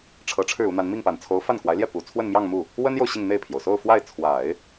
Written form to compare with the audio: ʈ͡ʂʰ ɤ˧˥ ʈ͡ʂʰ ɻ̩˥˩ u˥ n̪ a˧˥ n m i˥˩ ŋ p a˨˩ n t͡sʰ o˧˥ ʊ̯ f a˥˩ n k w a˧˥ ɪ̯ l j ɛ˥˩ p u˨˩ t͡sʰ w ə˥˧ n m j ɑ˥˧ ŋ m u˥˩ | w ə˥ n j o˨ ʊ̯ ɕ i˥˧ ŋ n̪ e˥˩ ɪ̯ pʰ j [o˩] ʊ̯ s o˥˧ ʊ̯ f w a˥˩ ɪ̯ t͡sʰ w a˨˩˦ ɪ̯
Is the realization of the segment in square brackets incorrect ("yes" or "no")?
no